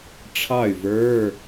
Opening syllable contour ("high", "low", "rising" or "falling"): falling